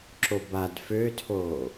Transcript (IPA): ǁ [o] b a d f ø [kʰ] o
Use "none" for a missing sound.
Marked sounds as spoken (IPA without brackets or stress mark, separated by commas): o, tʰ